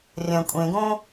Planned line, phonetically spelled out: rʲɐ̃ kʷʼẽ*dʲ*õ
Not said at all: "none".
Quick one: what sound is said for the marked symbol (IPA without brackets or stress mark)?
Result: ɡ